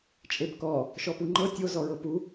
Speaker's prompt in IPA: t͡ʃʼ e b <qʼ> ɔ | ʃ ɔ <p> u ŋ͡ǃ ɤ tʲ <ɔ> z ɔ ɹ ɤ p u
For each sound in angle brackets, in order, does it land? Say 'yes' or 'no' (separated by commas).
no, yes, no